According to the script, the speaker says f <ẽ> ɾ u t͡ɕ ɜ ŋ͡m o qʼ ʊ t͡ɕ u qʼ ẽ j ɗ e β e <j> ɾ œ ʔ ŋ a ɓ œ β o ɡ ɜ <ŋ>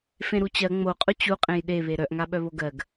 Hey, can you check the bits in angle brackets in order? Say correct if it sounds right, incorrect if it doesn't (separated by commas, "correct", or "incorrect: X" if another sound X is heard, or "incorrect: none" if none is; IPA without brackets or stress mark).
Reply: correct, incorrect: none, incorrect: ɡ